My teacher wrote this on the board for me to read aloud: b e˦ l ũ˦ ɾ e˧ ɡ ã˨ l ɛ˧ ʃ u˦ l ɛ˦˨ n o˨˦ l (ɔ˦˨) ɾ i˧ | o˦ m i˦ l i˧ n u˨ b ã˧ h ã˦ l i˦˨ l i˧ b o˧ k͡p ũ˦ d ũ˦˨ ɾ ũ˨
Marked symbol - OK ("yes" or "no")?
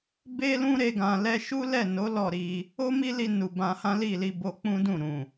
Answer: yes